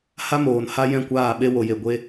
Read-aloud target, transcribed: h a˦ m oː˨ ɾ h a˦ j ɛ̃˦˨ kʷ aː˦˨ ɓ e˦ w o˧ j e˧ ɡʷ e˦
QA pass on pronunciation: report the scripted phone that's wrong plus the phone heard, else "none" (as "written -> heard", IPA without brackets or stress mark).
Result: ɾ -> n